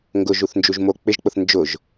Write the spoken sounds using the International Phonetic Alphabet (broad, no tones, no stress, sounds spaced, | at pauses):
ŋ ɡ ʊ ʒ u θ n d͡ʒ u ʒ m o k͡p ɪ ʒ k͡p ʊ θ n d͡ʒ ʊ ʒ